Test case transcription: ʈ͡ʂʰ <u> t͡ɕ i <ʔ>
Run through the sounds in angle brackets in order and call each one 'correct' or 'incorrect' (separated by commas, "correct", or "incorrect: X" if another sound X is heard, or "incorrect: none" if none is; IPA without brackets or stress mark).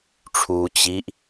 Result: correct, correct